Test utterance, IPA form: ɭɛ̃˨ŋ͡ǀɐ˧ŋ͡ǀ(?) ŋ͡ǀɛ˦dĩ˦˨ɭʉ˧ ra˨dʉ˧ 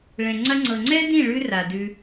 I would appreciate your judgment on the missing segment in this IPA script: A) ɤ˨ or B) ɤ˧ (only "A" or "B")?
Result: A